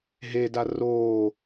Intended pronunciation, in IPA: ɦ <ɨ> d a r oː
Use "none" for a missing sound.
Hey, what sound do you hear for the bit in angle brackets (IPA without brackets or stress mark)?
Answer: e